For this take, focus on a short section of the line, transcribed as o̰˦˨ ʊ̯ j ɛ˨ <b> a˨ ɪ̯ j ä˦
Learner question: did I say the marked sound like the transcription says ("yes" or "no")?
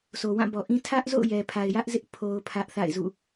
no